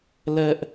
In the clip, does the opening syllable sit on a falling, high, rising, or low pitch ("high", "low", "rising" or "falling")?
high